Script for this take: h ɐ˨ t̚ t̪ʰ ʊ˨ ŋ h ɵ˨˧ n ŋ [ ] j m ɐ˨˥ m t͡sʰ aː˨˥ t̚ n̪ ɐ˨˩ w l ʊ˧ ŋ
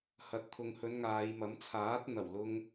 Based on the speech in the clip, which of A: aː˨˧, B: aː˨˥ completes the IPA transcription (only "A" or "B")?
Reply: A